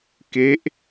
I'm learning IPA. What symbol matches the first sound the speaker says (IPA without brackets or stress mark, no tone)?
k